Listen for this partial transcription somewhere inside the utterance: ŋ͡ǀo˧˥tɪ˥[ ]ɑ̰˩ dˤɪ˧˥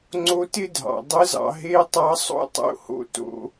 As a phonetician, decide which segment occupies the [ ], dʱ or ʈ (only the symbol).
dʱ